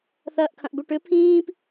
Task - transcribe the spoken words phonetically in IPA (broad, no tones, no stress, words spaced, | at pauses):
θɐːʔkʰɐ̃ʔbʏʈʏ pʰĩːp